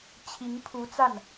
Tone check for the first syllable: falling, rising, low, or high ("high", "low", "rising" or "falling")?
rising